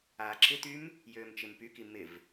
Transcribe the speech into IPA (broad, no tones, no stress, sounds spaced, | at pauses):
aː ǁʰ ɪ t̪ y m | j øː m t͡ʃ ɪ m p y k i m ɪ v